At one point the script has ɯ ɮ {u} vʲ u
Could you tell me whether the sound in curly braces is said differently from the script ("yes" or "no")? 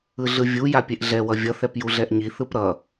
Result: yes